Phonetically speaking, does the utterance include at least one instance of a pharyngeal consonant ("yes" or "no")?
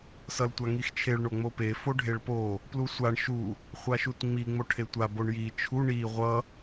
no